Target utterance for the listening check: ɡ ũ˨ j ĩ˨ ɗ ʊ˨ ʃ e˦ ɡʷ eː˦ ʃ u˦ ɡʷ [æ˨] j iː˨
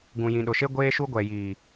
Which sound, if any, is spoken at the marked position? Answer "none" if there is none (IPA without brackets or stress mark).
ɛ˨